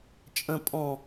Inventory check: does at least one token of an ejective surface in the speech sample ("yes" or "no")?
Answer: yes